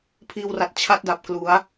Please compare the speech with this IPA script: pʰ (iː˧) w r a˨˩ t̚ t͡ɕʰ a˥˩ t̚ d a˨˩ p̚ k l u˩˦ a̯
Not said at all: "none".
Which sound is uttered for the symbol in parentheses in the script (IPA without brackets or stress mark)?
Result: iː˧